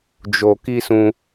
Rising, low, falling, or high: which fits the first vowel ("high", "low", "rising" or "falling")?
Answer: low